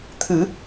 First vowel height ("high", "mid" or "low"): high